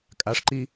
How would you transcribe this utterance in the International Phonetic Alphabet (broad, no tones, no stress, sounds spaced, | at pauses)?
kʼ a ʂ ǃ i